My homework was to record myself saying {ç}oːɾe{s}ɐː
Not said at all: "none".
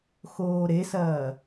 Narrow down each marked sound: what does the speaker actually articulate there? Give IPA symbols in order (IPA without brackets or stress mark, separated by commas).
x, s